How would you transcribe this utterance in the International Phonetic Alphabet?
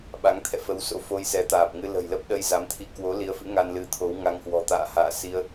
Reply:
ɓa˨˦ŋ t̪ʰɛ̰˧˨fə˨˦wso̰˧˥ fo˧jsɛ˨˦t̪aː˨˩p̚ŋɨ˧ lə̤˨˩jlə˦˥p̚ɗə˧j za˨˦mt̪ʰi˧ kwo˨˦li˨˦ə̯fɨ̰˧˥ ŋa˧nlɨ˨˦t̪ʰo˨˦w ŋa˧ŋhwɔ̤˨˩t̪a̰ː˧˨ ha̰ː˧˨si˧ə̯

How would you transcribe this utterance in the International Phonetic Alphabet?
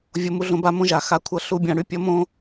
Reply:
vʲo˧mu˧ɮõ˧ ba˧mõ˧ ʒa˨xa˧kʷʰʌ˦˨ ɬu˦bʲã˧ ɽy˦pʲʌ˦ mõ˦

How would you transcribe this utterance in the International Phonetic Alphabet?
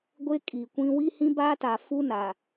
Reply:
ɡʷe˦kʼi˨kʷĩ˦ wi˦hĩ˦baː˦ta˨ fu˦na˨

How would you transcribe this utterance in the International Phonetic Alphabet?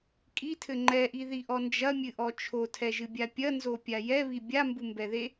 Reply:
kʼitʰɘ ŋ͡ǃɛʔiðiʔɔ nd͡ʒɐmʲɨʔɔ t͡ʃʰotʰɛʒɨbʲa pʲɐnzopʲa jɛβi bʲambumbɛðe

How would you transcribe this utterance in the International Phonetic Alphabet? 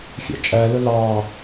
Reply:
xʲæ̰t͡ʃʼælə lɑ

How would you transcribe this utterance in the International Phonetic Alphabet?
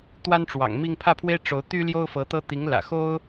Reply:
t̪wa˥nʈ͡ʂwɑ̰˨˩ŋmi˥˧ŋ pʰä˥˩pʰwe˥ɪ̯ ʈ͡ʂo˧˥ʊ̯ t̪y˥ ljo˥ʊ̯fɤ˧˥t̪ɤ˥ t̪i˧˥ŋlä̰˨˩ xo˥ʊ̯

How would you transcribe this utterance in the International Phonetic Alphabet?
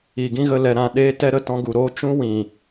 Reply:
i˨ɡĩ˦ɣə˧ lɛ˨ɾã˨ɗeː˧tɛ˧ ɾə˧tɔ̃˧ɡu˨ɾoː˦ t͡ʃũ˦wĩ˨

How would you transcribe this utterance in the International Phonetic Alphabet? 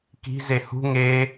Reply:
ki̤ zehṳ ŋe

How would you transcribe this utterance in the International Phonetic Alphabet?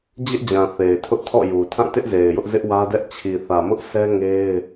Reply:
d͡ʑɪ˦ʔd͡ʑã˨ θe˨ɪ̯tʰʊ˦ʔtʰɔ̰˦˨ju˨ tʰã˦˨tɪ˦ʔ ze˨ɪ̯jʊ˦ʔ zɪ˦ʔwä˦dɛ˦ʔ t͡ɕʰi˨θä˨mʊ˦ʔ sʰɛ˦ŋe˦ɪ̯

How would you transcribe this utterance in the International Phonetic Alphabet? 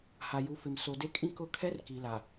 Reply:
ha˨ju˨˦ fɪ˨m so˨de˦kʼĩ˦ kʊ˦˨kʰɛ˦r ki˨la˨

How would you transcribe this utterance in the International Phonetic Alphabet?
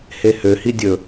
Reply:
hehøhi dʲɵ

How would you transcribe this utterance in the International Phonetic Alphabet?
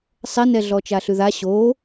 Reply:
sˤɛnɛɮɔ t͡ʃaɬʉða ɕo

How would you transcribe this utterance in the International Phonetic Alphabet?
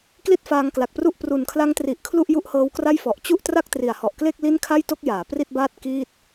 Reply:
kli˥˩t̚faː˧ŋkla˨˩k̚pru˥˩ʔ pru˨˩nkʰla˦˥ŋtri˨˩ʔ kʰlu˥˩ʔju˥˩ʔhɤː˦˥wkra˥˩j fɔ˨˩ʔt͡ɕu˥˩ʔ tra˥˩k̚tri˨˩a̯hɔ˨˩ʔkle˥˩k̚ li˥˩n kʰa˥˩jto˥˩k̚ jaː˩˦ pri˥˩t̚baː˥˩t̚ kiː˥˩t̚

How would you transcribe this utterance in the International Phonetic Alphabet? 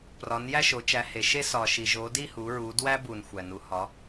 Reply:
prɒ˨˦njæ˥˧ʃo˨˦ t͡ʃæ˨˦ he˨˦ʃe˥ sɒ˨ʃi˨ ʒo˨˦di˥˧hu˨˦ ɹu˨˦dwæ˥ bu˨n xʷæ˨nu˨˦hɒ˨˦

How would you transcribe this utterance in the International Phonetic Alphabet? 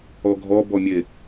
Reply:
ɔɡʱɔ bɔmʲe

